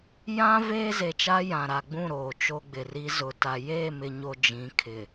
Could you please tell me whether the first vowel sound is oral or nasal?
nasal